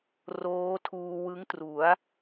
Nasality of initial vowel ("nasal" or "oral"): oral